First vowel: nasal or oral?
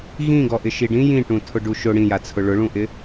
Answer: nasal